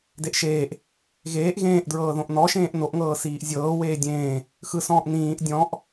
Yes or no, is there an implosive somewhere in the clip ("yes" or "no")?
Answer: no